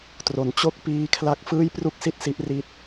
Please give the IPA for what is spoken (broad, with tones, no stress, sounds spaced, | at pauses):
t r o˩˦ n t͡ɕ o˥˩ k̚ p iː˦˥ kʰ l a˦˥ k̚ f ɯː˥˩ j p r u˥˩ k̚ s i˥˩ t̚ s i˦˥ ʔ r i˦˥ t̚